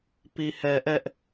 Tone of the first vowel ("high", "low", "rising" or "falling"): low